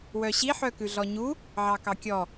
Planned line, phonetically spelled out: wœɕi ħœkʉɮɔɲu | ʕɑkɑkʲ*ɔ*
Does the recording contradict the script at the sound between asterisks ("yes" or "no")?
no